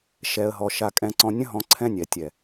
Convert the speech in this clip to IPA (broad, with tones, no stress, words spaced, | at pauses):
ʃɛ˨ə̯ɦɔ˨ ʃa˧kʼɛ̃˧ǀɔ̃˧ nʲə̃˦ɦɔ̃˧ ǀʰɛ̃˦nʲɛ˨ tʲɛ˨